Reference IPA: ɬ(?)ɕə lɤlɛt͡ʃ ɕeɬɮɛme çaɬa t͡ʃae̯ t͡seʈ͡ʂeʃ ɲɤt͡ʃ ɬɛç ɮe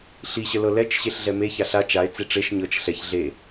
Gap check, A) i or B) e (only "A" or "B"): A